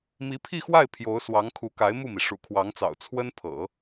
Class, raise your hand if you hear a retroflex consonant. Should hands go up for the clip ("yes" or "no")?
yes